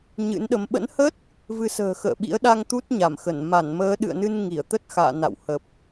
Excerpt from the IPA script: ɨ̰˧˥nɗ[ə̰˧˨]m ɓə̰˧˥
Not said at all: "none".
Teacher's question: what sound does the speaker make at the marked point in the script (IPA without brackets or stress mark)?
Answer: ə˨˦